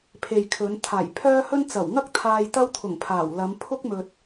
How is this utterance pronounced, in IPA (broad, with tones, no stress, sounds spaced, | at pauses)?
pʰ e˨ j kʰ ɵ˨˧ n t̪ʰ aː˨˩ j pʰ œː˥ h ɵ˥ n t͡s ɐ˨˩ w ŋ ɐ˥ k̚ t̪ʰ aː˧ j t̪ ɐ˥ w t̪ʰ ʊ˨˩ ŋ pʰ aː˨˩ w l ɐ˨˧ m pʰ ʊ˥ k̚ m ɵ˨ t̚